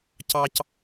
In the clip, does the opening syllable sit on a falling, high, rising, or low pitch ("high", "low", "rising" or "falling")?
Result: low